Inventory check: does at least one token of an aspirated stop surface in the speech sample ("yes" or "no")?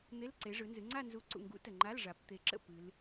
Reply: no